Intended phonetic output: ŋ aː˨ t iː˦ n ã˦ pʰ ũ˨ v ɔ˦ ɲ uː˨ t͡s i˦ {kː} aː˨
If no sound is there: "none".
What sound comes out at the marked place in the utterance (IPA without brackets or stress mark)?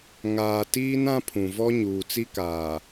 k